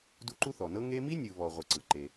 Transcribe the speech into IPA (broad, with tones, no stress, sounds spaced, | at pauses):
d u˦ ǃ u˥ θ ɔ˩ n ɤ˥ ŋ e˦ m i˥ nʲ ɯ˨ β ɔ˨ ʁʷ ɤ˨ ǀ ɯ˩ ǃ e˨